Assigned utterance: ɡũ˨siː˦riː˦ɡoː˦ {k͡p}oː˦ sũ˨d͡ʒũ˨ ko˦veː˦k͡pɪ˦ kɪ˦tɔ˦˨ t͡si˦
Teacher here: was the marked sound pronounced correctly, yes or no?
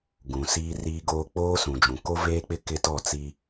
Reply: yes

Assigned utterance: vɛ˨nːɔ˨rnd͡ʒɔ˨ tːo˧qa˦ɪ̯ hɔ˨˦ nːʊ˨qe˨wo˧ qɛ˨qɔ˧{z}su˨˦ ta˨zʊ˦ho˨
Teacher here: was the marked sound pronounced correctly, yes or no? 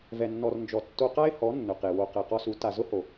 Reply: no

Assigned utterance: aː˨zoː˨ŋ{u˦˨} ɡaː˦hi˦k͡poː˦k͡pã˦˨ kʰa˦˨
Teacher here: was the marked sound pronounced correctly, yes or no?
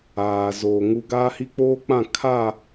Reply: no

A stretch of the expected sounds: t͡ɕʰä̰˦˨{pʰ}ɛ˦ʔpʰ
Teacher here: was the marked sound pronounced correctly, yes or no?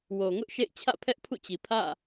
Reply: yes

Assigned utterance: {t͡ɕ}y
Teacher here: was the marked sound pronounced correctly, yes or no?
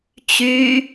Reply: yes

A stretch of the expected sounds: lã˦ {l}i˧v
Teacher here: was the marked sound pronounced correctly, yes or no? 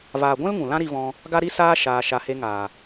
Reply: no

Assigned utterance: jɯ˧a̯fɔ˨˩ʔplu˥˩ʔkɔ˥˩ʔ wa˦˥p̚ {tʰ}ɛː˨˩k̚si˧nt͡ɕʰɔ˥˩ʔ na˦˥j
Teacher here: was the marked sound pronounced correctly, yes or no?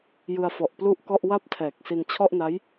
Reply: yes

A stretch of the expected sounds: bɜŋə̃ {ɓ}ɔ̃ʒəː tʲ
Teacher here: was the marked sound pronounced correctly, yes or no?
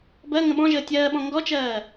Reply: yes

